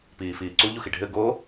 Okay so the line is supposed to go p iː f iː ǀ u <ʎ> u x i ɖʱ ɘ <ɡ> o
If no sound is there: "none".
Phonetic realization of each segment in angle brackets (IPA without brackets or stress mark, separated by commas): ʎ, ɡ